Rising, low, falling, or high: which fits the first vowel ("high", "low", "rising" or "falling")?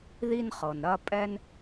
high